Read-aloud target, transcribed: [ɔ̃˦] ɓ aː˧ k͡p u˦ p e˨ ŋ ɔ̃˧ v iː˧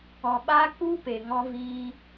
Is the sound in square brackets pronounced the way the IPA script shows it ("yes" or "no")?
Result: no